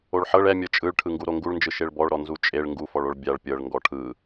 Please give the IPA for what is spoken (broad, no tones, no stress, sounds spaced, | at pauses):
o ɭ ħ ɤ ɭ ɛ mʲ ɤ t͡ʃʼ ɯ ɭ ʈʰ ɯ ŋ ɡ u ɾ o ŋ ɡ u ɭ n d͡ʒ ɯ ʃ e ɭ b ɔ ɭ ɾ ɔ n z u t͡ʃʼ e ɭ ŋ ɡ u f ɔ ɭ o ɭ bʲ a ɭ pʲ ɤ ɭ ŋ ɡ ɔ ʈʰ ɯ